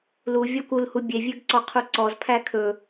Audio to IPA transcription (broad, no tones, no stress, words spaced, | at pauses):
luvʲɔk ulhu bʲevʲøɡǀɔqʰu ǀɔzpʰæ kʰɵ